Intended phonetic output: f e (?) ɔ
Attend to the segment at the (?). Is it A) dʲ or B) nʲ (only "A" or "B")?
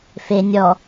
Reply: B